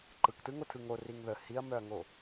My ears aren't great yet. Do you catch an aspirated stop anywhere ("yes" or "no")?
yes